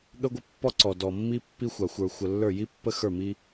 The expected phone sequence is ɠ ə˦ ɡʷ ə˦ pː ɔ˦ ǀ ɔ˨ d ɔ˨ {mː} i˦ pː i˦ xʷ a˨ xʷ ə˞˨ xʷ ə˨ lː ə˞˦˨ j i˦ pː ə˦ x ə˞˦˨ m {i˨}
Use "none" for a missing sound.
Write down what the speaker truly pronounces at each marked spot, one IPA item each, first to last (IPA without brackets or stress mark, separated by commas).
mː, i˦